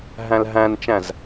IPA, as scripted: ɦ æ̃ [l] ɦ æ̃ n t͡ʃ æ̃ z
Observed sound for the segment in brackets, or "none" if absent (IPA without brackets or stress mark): l